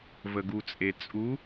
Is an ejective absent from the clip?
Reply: no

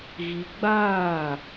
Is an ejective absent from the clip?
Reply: yes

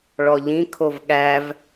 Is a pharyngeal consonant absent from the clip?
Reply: yes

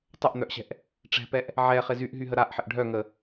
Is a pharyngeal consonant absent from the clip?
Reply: no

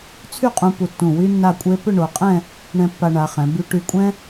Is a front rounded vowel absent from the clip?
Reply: no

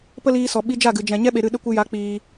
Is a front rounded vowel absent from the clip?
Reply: yes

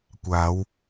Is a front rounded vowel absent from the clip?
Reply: yes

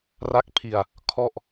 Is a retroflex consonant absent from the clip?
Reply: yes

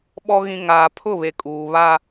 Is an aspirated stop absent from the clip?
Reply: no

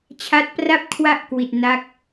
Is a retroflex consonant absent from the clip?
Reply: yes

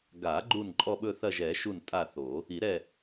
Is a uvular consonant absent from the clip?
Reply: yes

